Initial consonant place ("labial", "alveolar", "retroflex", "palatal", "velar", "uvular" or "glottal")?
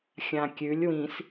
velar